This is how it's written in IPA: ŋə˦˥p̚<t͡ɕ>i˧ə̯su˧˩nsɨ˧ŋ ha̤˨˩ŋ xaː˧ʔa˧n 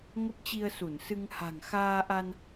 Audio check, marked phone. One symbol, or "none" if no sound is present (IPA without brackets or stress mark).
t͡ɕ